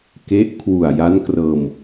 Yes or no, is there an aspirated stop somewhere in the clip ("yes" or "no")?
yes